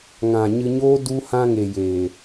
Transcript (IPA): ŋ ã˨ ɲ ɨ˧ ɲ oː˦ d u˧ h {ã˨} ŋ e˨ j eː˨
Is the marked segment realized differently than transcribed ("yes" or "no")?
yes